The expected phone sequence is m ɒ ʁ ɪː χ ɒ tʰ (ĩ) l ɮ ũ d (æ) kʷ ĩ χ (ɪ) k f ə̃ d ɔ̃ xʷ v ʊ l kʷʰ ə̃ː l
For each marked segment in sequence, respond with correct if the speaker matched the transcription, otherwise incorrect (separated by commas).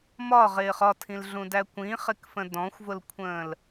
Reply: correct, correct, correct